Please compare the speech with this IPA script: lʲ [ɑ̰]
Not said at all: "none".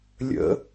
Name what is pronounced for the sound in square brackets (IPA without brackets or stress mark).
ə̰